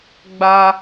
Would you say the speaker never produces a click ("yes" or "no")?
yes